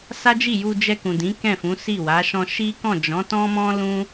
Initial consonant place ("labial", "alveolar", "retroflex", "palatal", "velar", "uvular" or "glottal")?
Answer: alveolar